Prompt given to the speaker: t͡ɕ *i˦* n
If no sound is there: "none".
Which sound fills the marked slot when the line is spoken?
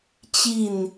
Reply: i˥˨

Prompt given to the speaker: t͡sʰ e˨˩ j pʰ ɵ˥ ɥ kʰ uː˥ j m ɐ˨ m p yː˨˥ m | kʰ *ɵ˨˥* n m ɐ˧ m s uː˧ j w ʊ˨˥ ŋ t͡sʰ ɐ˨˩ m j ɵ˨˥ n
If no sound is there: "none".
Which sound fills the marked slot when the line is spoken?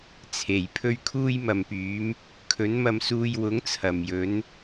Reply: ɵ˨˥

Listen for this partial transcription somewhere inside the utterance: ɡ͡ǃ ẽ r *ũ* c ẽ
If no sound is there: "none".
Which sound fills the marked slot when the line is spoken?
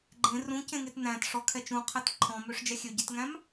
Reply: ũ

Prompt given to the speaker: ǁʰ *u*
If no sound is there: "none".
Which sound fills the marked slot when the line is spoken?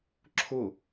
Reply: ʊ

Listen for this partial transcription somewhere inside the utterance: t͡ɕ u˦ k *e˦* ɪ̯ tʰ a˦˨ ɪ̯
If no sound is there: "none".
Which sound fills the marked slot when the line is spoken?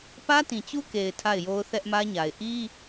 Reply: e˨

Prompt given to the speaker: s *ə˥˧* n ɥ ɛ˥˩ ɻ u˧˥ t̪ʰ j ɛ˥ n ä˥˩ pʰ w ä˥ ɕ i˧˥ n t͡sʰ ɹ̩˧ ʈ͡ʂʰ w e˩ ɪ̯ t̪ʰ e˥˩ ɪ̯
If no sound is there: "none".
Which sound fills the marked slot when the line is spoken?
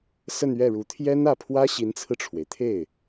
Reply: ə˥˧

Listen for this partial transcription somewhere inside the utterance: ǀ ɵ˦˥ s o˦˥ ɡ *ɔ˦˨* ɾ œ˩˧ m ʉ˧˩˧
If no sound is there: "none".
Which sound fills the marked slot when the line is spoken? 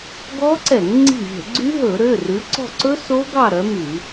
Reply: ɑ˦˨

